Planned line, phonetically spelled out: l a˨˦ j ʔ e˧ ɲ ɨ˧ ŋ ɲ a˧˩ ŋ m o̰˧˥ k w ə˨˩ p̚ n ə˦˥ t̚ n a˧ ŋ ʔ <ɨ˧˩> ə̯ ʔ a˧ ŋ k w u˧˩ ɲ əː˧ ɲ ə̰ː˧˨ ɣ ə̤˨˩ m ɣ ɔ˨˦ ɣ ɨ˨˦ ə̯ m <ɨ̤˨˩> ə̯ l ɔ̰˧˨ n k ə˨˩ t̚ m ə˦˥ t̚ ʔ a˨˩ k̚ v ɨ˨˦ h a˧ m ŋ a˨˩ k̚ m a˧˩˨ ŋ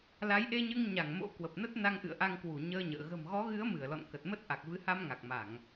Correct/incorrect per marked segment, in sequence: incorrect: ɨ̰˧˨, incorrect: ɨ˧˩

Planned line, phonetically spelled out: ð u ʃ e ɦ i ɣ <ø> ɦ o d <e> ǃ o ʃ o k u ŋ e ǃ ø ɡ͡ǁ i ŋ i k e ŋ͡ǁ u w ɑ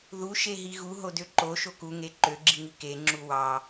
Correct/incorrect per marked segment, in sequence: incorrect: u, incorrect: ø

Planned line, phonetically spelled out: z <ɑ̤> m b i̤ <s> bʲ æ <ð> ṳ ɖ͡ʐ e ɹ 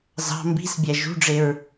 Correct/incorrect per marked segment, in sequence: correct, correct, incorrect: ʒ

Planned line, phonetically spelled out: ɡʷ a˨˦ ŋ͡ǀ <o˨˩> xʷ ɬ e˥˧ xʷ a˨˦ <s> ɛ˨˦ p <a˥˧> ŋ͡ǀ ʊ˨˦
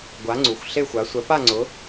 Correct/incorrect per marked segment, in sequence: incorrect: u˨˩, incorrect: sʷ, correct

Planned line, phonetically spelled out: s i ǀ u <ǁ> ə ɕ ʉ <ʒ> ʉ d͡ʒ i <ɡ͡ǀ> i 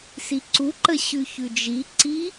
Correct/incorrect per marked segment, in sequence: incorrect: ǃ, incorrect: ç, incorrect: ǀ

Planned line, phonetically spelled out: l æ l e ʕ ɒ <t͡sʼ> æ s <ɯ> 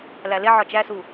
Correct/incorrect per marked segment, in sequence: incorrect: t͡ʃ, incorrect: u

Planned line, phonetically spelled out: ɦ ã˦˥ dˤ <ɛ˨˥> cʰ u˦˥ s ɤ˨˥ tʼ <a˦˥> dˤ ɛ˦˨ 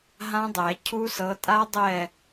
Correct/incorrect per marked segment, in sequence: incorrect: ɛ˨˩˦, correct

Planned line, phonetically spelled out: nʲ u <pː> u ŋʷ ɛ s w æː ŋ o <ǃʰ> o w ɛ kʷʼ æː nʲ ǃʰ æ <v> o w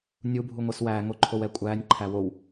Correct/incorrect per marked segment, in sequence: incorrect: bʱ, correct, incorrect: w

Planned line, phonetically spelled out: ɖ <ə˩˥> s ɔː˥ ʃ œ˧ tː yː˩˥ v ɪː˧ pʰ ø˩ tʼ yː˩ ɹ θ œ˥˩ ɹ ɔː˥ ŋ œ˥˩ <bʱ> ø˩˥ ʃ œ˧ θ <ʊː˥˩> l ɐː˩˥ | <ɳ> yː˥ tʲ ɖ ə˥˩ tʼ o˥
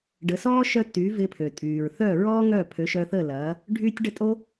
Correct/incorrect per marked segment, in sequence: correct, incorrect: pʰ, incorrect: əː˥˩, incorrect: ɖʱ

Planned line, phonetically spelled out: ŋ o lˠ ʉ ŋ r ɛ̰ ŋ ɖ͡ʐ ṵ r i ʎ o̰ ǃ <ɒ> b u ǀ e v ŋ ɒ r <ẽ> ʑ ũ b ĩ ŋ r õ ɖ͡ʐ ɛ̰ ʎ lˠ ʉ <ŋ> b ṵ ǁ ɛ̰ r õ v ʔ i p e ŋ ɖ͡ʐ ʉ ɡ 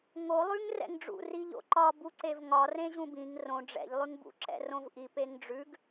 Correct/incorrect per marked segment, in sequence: correct, correct, correct

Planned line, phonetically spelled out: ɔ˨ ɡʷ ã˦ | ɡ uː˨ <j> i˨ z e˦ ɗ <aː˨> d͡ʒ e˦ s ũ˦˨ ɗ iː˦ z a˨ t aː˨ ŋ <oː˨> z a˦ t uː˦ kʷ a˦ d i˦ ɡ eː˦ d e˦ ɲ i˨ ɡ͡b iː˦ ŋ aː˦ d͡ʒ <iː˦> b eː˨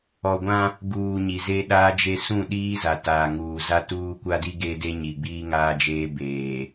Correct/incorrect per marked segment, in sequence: incorrect: ɲ, incorrect: aː˦, incorrect: uː˨, incorrect: eː˦

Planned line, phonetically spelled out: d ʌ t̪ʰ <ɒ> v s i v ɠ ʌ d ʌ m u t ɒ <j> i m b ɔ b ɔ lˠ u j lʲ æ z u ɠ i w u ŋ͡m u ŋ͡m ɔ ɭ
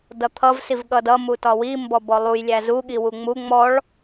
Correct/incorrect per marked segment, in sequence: incorrect: ʌ, incorrect: w

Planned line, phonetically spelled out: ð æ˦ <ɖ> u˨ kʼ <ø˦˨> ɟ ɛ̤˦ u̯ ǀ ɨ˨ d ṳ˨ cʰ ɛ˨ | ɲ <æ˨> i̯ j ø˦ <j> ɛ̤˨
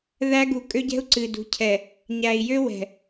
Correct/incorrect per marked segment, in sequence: incorrect: ɡ, incorrect: ø˦, correct, incorrect: w

